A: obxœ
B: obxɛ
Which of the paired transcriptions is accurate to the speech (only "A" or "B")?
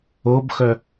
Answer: A